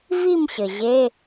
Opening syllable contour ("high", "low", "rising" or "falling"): falling